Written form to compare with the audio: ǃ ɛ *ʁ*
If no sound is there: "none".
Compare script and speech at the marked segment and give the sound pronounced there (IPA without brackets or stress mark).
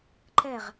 ʁ